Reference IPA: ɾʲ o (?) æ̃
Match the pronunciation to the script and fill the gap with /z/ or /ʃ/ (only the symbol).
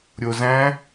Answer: z